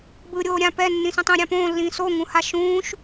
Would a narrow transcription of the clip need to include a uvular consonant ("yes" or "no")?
no